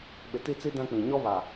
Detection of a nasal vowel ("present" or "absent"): present